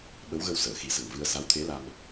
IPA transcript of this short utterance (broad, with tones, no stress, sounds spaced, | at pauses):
ɓ ə˧˥ w ɣ ə˧ w s əː˨˩˨ x i˨˩˦ s ə˨˩ ŋ v ɨ˧ ə̯ s a˧˥ w t̪ʰ e˧˥ l a˧ m